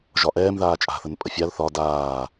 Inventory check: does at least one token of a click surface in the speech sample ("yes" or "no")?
no